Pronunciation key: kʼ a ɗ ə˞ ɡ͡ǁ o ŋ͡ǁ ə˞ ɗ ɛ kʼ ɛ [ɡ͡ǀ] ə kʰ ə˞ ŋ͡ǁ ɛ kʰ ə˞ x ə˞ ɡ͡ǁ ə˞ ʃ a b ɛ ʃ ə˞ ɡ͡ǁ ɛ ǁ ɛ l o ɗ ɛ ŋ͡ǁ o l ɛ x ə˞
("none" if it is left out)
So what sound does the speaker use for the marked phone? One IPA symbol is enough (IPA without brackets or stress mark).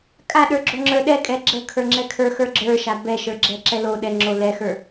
ɡ͡ǁ